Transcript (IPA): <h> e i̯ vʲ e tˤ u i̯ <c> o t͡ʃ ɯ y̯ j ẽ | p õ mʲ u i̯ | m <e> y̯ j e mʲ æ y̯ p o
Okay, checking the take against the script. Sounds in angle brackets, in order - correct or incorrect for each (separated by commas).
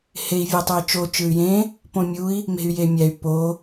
correct, incorrect, incorrect